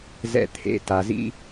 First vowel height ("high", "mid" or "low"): mid